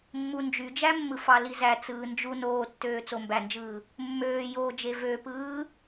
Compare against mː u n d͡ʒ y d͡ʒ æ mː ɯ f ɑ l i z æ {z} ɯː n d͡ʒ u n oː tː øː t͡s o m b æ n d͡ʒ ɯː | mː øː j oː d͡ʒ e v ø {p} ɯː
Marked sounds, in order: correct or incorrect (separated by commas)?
incorrect, correct